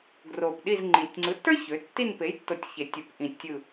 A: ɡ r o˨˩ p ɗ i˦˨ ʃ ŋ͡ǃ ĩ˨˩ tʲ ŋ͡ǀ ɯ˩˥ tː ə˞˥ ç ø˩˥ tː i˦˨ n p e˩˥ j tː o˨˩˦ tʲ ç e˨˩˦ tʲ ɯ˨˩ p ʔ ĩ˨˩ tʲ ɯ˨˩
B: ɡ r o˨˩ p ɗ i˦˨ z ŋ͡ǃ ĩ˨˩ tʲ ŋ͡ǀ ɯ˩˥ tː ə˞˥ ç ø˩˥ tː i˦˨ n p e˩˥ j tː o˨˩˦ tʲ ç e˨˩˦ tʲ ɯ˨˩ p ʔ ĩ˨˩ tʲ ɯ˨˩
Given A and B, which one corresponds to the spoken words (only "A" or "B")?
B